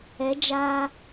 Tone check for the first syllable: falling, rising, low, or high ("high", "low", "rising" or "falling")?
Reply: rising